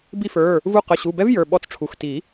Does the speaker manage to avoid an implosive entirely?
no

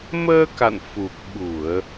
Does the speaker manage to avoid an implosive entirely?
no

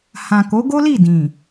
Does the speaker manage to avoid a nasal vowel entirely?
no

